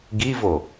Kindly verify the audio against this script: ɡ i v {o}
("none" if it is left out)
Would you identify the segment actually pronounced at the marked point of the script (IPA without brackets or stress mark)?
o